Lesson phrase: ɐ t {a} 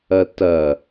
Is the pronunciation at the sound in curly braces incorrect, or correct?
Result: incorrect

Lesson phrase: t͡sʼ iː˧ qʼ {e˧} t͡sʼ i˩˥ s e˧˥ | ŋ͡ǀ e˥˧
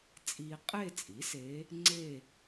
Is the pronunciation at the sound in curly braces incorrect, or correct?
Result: incorrect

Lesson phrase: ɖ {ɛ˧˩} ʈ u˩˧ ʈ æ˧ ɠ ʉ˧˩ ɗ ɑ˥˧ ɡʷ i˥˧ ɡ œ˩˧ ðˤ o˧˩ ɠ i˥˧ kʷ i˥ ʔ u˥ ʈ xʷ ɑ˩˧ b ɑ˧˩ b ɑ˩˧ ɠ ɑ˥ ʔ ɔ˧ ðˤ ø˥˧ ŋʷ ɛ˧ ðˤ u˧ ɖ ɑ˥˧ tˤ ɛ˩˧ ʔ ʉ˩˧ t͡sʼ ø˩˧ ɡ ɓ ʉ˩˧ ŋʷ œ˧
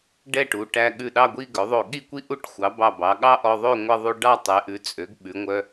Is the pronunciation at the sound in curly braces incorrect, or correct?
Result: incorrect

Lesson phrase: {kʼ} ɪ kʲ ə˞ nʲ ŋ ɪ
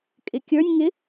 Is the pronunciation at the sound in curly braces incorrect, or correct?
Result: correct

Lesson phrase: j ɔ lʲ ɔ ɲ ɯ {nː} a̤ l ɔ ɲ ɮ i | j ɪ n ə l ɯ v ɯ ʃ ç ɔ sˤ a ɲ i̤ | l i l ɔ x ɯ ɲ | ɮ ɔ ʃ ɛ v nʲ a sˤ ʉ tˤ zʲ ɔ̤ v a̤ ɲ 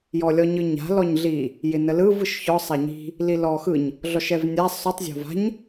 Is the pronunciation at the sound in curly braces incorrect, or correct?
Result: incorrect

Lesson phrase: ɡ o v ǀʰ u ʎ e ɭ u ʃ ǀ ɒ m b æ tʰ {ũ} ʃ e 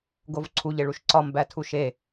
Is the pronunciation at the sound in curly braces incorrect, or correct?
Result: incorrect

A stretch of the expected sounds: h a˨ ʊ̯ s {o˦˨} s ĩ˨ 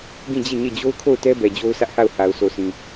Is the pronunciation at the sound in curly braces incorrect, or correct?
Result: incorrect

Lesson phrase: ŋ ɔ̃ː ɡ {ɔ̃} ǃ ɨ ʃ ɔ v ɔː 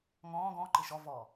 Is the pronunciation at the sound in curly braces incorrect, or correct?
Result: correct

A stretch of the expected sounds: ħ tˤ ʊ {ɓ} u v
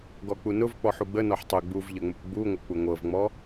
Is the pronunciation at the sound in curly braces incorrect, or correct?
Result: incorrect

